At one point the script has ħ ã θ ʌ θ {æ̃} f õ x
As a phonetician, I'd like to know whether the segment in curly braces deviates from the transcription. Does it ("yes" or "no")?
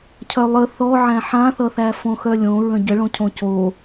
yes